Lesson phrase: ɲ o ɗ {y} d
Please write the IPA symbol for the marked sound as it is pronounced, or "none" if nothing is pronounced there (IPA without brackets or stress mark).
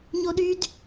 y